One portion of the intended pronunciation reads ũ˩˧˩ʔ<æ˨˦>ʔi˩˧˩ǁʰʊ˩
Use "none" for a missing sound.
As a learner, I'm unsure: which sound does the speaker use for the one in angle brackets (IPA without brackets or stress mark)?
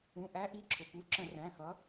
æ˨˦